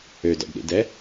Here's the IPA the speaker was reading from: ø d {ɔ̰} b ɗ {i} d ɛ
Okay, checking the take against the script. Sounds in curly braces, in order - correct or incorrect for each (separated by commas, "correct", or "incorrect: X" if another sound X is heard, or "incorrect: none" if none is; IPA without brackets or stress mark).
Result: correct, incorrect: ḭ